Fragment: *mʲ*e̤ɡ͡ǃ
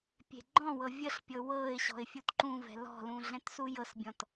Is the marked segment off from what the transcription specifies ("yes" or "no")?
yes